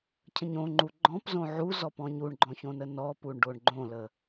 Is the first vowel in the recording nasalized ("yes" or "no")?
yes